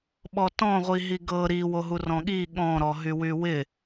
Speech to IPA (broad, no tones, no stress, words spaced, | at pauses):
ɓɔtɔ̃ʁʷiɦi ɡɤ ɾiwoɦu rɔ̃ɠi ɠɔ̃ɾɔ ɦywywɪ